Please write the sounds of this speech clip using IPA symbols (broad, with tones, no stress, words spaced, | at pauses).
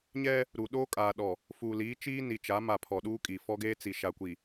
ɲɛ˦ | ɾu˨ɗoː˦kʼaː˨ɗɔ˨ | fu˨liː˨˦ t͡ʃiː˦ni˨t͡ʃa˨˦ma˨ pʰɔ˨ɗuː˦kʼi˨ fɔ˦ɡeː˦t͡si˨ ʃa˨kʷi˨